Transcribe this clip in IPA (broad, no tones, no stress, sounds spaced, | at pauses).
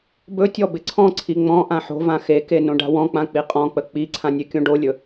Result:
b ɵ tʲ ɔ b ɪ ǀʰ ɔ̃ ǀʰ i ŋ͡m ɔ̃ ʔ ã ħ o̤ v ã x e k e n õ ɖ a̤ w ɔ̃ k͡p ã k͡p i qʼ ɔ̃ k͡p ə k͡p i ǀʰ ã nʲ e kʲ õ ɖ o lʲ ɵ